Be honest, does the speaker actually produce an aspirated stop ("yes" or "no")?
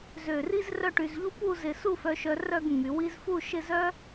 no